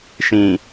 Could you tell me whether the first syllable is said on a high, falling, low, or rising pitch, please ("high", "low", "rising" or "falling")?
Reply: low